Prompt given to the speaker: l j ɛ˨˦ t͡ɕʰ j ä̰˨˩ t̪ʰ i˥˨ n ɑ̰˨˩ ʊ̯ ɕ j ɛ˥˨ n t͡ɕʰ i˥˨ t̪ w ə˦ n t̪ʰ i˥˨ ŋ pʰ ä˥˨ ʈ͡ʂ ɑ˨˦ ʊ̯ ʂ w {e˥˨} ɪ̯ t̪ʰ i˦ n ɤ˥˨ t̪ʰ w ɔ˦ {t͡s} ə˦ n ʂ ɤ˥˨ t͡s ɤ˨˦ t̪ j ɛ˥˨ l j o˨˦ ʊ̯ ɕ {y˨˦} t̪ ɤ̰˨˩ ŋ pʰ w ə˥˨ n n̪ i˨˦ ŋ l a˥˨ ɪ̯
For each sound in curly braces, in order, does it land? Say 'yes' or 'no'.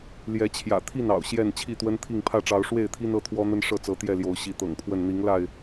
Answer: yes, no, no

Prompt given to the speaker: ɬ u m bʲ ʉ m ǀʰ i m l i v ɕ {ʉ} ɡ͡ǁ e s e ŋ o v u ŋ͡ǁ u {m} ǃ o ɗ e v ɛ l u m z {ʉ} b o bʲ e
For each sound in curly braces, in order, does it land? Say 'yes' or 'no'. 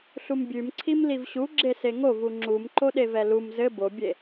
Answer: no, yes, no

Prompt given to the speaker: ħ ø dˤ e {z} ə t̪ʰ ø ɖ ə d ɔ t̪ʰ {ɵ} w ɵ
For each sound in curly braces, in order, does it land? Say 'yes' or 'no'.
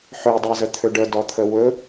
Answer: yes, no

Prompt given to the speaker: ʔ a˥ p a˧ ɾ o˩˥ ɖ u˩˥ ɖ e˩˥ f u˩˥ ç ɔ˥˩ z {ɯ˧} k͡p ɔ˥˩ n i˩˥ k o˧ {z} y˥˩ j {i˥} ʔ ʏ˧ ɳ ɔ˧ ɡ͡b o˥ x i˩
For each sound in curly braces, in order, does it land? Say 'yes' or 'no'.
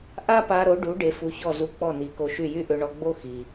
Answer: no, no, no

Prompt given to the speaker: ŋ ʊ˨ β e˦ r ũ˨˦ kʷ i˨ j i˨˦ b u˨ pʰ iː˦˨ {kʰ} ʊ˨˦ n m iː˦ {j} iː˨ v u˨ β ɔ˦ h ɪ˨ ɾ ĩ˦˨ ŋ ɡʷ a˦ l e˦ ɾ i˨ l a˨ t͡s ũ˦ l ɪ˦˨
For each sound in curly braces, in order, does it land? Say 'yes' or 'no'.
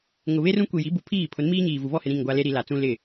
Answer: no, no

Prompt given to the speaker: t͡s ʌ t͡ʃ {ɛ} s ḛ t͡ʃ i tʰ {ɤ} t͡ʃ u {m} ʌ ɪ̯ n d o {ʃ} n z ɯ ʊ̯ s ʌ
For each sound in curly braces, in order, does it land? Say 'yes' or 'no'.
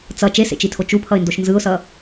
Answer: no, no, no, yes

